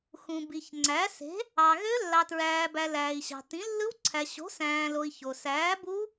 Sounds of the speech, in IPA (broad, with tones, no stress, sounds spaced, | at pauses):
x ũ˨ b i˨ ç ŋ͡ǀ æ˨˥ s e̤˨˥ | ɑ˨ ɣ ø˦˥ lː ɑ˨ t ɹ æː˨ b æ˨ l æː˨ i̯ ɕ ɑ̤˨ t ĩ˨˥ lː ɯ˦˥ w ǀʰ æ˨ ɕ o̤˨˥ s æ̃ː˨ l o˨ i̯ ç o˨ s æː˨˥ b u˦˥